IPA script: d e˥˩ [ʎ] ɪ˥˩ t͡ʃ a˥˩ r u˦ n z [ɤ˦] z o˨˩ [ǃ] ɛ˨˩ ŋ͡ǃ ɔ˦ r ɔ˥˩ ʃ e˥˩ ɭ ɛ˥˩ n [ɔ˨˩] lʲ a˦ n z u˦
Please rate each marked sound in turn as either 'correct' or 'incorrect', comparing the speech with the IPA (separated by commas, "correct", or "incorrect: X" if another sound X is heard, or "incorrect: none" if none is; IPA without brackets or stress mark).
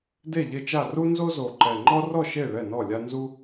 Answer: correct, incorrect: o˦, correct, incorrect: ɔ˥˩